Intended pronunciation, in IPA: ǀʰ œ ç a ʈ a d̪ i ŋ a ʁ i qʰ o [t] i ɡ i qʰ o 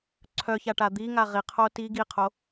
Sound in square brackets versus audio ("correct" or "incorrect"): correct